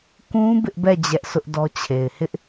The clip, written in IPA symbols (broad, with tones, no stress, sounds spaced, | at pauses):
k ũ˦ b ɪ˦ ʔ b ɛ˦˨ d͡ʑ ɛ˦ ʔ s ʊ˦ ʔ d ɔ˦ t͡ɕʰ e˨ ɪ̯ h ɪ˦ ʔ